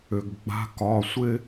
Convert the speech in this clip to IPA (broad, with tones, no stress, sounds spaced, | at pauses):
ʏ˩ ɡ ɡ͡b a̤˨˦ k ɒ˩˧˩ sʷ ɪ˦